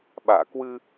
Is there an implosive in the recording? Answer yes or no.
yes